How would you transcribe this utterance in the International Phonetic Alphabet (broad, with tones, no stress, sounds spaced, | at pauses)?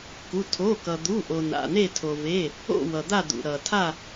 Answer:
k u˩˧˩ tʰ o˩˧˩ k ʌ˩ d̪ u˩˧˩ ʔ o˩ n a̰˩˧˩ n̪ e˦˨ tʰ o˩ v e˩˧˩ | o̰˦˨ w ʌ˩ d̪ a˦˨ d̪ ṵ˩ ɾ ʌ˩ tʰ a˦˨